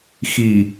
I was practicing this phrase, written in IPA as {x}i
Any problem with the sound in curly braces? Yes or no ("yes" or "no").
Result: no